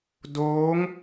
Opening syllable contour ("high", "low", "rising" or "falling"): rising